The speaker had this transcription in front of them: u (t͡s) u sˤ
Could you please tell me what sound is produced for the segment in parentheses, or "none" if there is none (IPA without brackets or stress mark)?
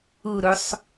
ɾ